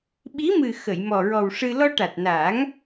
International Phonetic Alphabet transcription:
ɓ i˧˥ m ɨ˨˩ x ə˨˩˨ j m ɔ˨˩ ɹ ɔ˨˩ w ʂ ɨ˧ l ɔ˧ ʈ a˨˩ t̚ n aː˨˩˦ ŋ

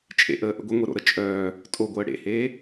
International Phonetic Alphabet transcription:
t͡ʃʼ ḛ ʔ əː ʔ ə̰ ɡʷ ə ŋʷ e ɾ o̰ ɾ ə t͡ʃʼ œː | tʼ o ɡʷ əː ɽ ḛ h eː

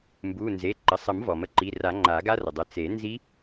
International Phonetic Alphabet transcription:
m b u˩˧˩ n z e˩˧˩ ǃ ə˩˧˩ sˤ ə˨˩˦ m v ɔ˩ m ə˧ ǃ i˩˧˩ r a˨˩˦ ŋ͡ǃ a˨˩˦ ɡ a˦˥ r ə˩ dˤ ə˩˧˩ t͡s e˨˩˦ n z i˦˥

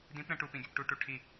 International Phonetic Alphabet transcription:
d ĩ p ɾ ə̃ ʈ u p ĩ ɡʲ ø p ʈ u ʈ u ʈʰ i

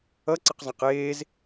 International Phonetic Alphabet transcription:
ʌ ǀ ɘ q zˤ ã q eː z

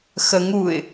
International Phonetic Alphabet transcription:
x ə ŋ u ɪ̯

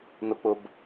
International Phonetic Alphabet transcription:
n ʊ k͡p ʊ b

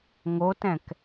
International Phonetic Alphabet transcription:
ŋ o t ɛ̃ k

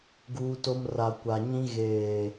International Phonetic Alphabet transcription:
ɡ uː˦ t o˦ m r a˨ kʷ a˨ ɲ ĩ˦ ɣ eː˨

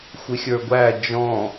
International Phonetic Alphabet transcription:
xʷ ɪ xʲ ə˞ ɡʷ æ d͡ʒ ɔ̃

